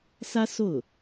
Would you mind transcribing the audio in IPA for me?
sä˥so˥˩ʊ̯

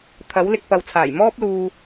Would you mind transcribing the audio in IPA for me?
t̪ʰɐ˨˥wlɪ˧k̚ pɐ˨wt͡sʰaː˨˩j mɔː˥p̚luː˧

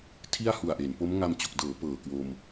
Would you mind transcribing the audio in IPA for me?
tʰi˥˩a̯hu˨˩a̯ʔe˩˦n po˦˥mŋa˧m t͡ɕo˨˩k̚dɤː˩˦ pɤː˨˩kwo˧m

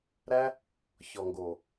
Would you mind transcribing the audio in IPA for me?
ɾæ˦ | çɔ˨ŋɡo˨

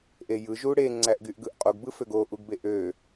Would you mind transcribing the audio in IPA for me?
ʔejɯ ʒuɽe ŋ͡ǀæʔɡyʔɡɯʔqʼoɡ bɯføɡo ʔuɡbeʔø

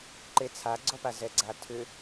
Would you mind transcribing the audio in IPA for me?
ǃet͡sʰaɡ͡ǀɔpa zɛɡ͡ǀatʰʏ

